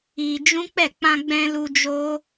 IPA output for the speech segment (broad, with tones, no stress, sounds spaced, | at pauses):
i˧ d͡ʒ ũ˦ k͡p ɛ˦˨ k͡p ã˧ ɡ͡b ɛ̃˧ l u˧ d͡ʒ o˦